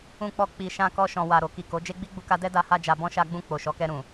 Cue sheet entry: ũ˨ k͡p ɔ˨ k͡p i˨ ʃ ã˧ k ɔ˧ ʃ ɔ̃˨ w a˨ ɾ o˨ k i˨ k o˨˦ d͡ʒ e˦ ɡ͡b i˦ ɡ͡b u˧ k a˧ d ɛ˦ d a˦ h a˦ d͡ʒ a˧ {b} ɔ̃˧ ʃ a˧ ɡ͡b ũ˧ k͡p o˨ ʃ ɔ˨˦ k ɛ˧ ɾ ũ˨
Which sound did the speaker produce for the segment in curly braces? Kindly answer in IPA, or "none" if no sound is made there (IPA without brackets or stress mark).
b